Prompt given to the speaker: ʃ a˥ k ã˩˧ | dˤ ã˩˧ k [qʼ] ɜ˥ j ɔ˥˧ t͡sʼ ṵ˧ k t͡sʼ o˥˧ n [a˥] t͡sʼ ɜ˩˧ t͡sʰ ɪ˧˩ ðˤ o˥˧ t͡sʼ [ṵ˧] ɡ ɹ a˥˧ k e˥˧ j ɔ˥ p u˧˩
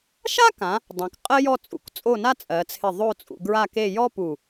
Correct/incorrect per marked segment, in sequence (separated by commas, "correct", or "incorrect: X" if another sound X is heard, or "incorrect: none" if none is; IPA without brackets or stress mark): correct, correct, correct